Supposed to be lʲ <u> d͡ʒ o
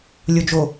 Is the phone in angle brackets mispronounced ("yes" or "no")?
yes